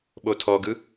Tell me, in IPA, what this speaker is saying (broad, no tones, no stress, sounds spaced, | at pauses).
ɓ o tʰ ɔ ɡ ɯ